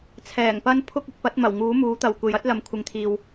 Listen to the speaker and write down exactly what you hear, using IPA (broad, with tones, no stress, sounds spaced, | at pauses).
t͡sʰ ɛː˨˩ ŋ p ɐ˧ n pʰ ʊ˥ k̚ ɪ˧ k̚ p ɐ˨˥ t̚ m ɐ˨˩ w ŋ uː˨˥ m uː˨˥ t̪ ɐ˨ w kʷ e˨ j ɐ˨˥ t̚ l ɐ˨ m kʷʰ ɪ˨ ŋ t̪ʰ iː˨ w